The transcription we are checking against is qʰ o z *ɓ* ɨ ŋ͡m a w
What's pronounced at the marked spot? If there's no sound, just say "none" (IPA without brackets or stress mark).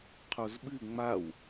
ɓ